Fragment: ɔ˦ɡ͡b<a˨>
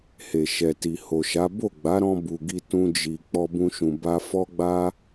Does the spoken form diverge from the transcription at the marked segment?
yes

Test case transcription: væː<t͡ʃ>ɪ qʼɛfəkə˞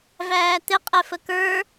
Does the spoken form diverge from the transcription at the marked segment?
yes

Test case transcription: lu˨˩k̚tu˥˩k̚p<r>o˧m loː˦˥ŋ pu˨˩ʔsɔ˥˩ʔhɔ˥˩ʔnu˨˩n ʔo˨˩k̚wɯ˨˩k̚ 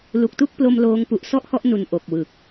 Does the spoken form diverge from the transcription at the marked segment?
yes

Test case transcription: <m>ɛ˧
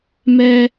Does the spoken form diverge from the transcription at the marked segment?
no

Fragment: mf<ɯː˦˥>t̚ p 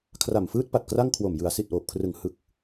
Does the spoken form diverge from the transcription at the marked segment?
no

